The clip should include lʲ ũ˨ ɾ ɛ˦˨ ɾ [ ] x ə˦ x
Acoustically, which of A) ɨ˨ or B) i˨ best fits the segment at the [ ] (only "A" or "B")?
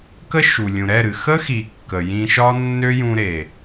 A